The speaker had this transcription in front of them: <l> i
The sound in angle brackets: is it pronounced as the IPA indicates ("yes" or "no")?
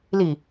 yes